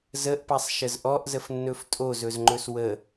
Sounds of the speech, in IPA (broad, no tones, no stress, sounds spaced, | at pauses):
z ə ʔ p a sˤ ʃ ə z ʔ ɔ ʔ z ə f nː ɵ f tʼ o z ɵ z ŋ͡ǃ ɵ s w ə